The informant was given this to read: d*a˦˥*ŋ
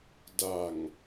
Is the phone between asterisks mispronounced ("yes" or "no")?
yes